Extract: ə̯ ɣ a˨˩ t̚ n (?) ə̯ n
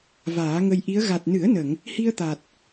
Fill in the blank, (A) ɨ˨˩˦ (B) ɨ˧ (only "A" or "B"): A